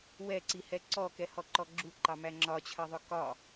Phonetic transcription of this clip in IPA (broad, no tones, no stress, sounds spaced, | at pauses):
w ɛ ǀ i h ɛ ǀ ɔ k ɛ h ɔ ǃ ɔ ɡ͡ǁ u ǃ ɑ m æ ŋ͡ǁ ɒ t͡ɕʰ ɜ ðˤ ʊ k ɒ